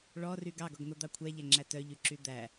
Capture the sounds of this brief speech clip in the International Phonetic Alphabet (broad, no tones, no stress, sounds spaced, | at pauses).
ɭ ɔ r y ɡ ɑ ɡ ɔ ɡ n̪ o d̪ ɑ kʷʰ æ ʎ æ ŋ͡ǁ æ t œ ʎ y ǁ y d̪ æ